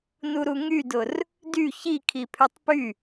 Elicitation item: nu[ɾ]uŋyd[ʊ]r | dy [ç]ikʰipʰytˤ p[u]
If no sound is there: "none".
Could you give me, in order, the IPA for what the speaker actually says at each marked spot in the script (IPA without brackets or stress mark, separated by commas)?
ɾ, ʊ, ç, y